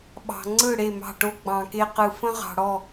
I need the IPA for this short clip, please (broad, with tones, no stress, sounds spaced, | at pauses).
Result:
ɓ ɑ̤˨ ŋ͡ǀ ɯ˦˨ ɽ e˦˨ m ɑ̤˦˨ ʈ o˦ ɡ͡b ɑ̃˨ k e˦ q ɯ˨ f ə̃˦ ʁ ɑ̤˨ ɽ ɔ˦˨